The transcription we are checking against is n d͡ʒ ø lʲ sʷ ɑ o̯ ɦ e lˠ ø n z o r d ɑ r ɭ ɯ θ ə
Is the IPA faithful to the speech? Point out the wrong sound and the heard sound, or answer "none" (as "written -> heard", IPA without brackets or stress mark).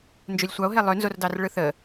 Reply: none